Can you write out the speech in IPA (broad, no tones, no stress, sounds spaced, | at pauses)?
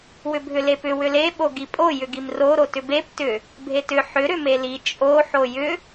w ʏ bʱ ʏ l e p ʏ w ʏ l e ɓ o ɡ i pʼ o j ʏ ɡ i m r o ɾ o t ʏ b e p t ʏ | bʱ e t ʏ ħ ʏ ɾ ʏ m e l i t͡ʃʼ o ħ o j ʏ